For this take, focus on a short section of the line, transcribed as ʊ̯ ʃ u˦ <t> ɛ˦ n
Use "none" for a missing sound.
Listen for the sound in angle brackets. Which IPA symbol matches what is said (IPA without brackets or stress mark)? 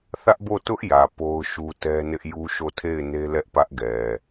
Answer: t